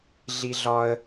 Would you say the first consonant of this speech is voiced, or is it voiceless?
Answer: voiced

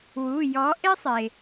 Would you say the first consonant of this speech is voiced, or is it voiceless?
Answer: voiced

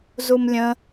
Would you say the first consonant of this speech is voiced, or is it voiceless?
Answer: voiced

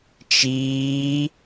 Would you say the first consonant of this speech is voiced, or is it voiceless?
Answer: voiceless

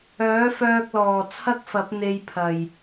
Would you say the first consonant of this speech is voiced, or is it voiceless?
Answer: voiceless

